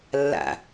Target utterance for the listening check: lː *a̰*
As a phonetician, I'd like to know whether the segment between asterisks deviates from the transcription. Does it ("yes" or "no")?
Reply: no